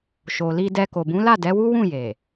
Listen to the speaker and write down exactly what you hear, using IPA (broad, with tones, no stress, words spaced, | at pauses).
ʃo˨li˧dɛ˧ ko˨bũ˨˦la˦˨ dɛ˨˦wu˦ wũ˦˨je˨